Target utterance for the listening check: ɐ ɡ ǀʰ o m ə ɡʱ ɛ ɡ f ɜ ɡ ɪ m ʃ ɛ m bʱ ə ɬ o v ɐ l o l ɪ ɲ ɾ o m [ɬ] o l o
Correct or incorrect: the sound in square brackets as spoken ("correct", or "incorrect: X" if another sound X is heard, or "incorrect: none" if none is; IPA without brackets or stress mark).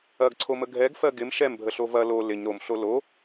correct